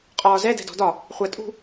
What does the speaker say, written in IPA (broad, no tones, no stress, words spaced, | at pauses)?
qʼɒːzɛ dɛ̤dɔ̤dɒ | χʷætʼṳ